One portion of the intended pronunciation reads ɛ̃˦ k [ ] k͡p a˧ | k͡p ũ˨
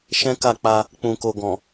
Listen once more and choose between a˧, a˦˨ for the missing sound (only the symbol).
a˦˨